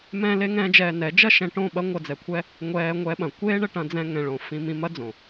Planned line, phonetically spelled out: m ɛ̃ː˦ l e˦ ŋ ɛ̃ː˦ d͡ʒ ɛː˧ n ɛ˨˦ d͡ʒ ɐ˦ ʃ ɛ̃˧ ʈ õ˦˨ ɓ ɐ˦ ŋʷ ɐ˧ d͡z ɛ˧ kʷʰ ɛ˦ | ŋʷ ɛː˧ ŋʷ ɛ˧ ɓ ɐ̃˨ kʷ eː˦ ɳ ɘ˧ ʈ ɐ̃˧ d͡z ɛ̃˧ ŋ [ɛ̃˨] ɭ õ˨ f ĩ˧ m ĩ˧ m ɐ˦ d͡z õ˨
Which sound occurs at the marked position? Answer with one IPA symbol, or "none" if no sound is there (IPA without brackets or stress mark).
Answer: ɛ̃˨